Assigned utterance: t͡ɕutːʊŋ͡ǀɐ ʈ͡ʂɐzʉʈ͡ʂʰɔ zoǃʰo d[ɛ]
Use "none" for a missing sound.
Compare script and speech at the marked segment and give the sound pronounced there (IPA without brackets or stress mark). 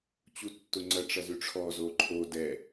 ɛ